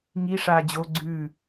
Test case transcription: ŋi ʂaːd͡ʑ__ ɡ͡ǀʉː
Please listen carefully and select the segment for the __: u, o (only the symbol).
o